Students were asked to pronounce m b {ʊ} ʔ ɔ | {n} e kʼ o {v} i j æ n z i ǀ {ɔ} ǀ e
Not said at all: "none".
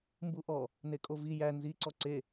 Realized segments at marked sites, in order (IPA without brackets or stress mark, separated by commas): u, n, v, ɔ